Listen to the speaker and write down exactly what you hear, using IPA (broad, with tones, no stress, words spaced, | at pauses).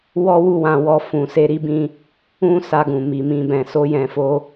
wɔ˦wu˦˨wã˧wɔ˧ fũ˨ se˧ɾi˦bĩ˧ | ũ˦ sa˧ɡũ˨mi˨ mĩ˨bɛ̃˨so˧ jɛ̃˧fo˦